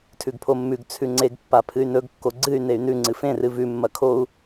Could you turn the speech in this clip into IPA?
tʰʉɡpʰomːʉɡ t͡sʰʉŋ͡ǀeɡ pːapʰɨy̯nɵɡ kːoɡ͡ǀɨy̯ ney̯nʉ ŋ͡ǀɨfẽ rɨvʉ mːɐkʰou̯

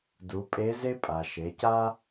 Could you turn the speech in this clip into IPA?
du˩˧ pʼe˧˥ze˥pʼa˩ ʃe˩˧ca˥

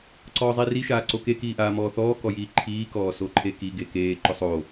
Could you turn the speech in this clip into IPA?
ǀɔːzˤiri ʃaːǀoke kiːʔaːmɔːθɔː kɔjiːǃʰiː kɔːsoǃʰeki ɡekeː ǃʊsˤo

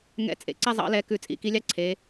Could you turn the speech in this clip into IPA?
ŋɛ̰˧˩t͡sʼḛ˩˧ ǀɛ˥˧zˤɑ̰˨˥lɛ˨˥ kʉ˧˩t͡sʼḭ˩˧ki˨˥lʲɑ˥˧ ǀʰe˩˧

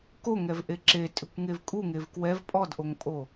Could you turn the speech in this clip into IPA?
koŋɛvʔe ǁetʼʏkʷŋev kʼuŋev kwɛv pʼɔdʔoŋpʼo

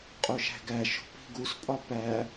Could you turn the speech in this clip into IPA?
qʼoʃæ̤ɡæʃo̤ pi̤ɡuspʼɒ pæ

